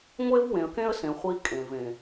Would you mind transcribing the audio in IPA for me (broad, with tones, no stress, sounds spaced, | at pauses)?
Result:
ŋʷ e˦ v w ẽ˨ ə̯ k ẽ˦ ə̯ s ẽ˨ χʷ i˦ kʼ ẽ˨ v ẽ˨